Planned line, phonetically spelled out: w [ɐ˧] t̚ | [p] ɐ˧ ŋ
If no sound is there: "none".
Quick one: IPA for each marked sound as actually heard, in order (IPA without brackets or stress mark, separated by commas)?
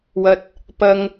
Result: ɐ˧, p